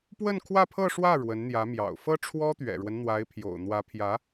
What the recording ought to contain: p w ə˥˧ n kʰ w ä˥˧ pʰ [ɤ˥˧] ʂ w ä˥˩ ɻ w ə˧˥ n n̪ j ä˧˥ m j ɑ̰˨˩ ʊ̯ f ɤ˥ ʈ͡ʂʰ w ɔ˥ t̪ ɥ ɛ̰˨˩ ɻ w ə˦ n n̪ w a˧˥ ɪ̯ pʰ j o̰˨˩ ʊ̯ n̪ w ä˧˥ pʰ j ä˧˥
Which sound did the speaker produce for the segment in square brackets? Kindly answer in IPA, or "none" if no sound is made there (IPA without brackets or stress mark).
ɤ˥˧